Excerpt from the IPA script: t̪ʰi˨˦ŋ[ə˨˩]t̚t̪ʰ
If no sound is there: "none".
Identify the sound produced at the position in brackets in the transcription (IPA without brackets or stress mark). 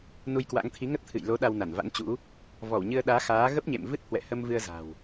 ə˦˥